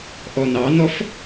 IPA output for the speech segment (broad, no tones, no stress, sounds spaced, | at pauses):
ʔ ɔ n ɑ n ɔ f